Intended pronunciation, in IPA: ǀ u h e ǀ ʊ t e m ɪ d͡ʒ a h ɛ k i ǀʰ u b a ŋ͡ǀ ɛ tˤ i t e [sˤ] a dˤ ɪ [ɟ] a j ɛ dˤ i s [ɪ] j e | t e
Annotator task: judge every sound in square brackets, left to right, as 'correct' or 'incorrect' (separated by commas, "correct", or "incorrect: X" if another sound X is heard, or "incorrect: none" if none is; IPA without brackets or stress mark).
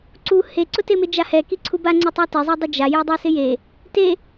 incorrect: zˤ, incorrect: d͡ʒ, correct